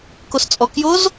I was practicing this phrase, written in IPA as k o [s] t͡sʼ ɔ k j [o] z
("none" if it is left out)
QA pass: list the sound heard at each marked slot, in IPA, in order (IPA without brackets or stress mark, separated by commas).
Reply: s, o